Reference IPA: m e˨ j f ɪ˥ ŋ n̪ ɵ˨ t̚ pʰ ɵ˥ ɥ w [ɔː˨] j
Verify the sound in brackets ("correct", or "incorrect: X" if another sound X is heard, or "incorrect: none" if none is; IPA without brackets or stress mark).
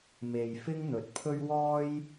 incorrect: ɔː˥